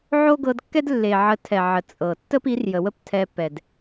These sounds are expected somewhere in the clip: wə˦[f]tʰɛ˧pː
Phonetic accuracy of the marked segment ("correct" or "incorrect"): incorrect